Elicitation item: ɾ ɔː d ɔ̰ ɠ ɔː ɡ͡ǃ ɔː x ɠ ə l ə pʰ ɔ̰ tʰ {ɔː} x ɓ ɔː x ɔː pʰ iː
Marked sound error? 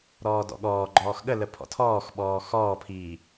no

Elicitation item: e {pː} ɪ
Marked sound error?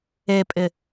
yes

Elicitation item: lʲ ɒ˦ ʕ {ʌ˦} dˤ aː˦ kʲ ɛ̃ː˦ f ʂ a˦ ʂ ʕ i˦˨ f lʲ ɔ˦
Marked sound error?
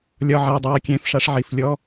yes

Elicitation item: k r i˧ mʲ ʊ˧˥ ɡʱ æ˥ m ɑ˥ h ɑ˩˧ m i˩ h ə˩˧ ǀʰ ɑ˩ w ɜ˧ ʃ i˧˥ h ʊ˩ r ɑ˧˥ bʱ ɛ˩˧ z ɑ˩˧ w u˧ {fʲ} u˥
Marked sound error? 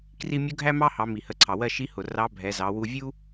yes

